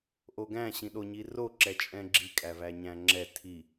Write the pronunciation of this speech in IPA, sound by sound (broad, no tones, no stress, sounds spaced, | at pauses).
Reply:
ʔ o ɡ æ̃ ɕ ĩ ɗ o ɲ i r o ǁ ɛ t͡ʃʼ ɛ̃ ɡ͡ǁ i kʼ æ v æ ɲ æ̃ ŋ͡ǁ ɛ tʰ i